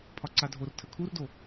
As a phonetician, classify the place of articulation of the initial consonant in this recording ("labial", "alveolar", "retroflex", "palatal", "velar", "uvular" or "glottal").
labial